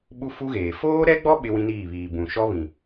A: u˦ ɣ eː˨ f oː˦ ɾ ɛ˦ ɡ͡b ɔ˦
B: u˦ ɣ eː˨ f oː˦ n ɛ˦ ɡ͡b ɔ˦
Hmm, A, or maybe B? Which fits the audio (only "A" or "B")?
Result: A